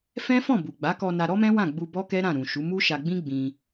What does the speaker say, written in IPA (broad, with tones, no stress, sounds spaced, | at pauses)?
f ɛ̃˦ f ɔ̃˦˨ b u˨ ɡ͡b a˨˦ k ɔ˧ n a˧ ɾ ɔ˦ m ɛ̃˦ w ã˦˨ ɡ͡b u˧ b ɔ˦ k ɛ˦ ɾ ã˦˨ ɾ ũ˨ ʃ u˨˦ m u˦ ʃ a˧ ɡ͡b ĩ˦ ɡ͡b ĩ˧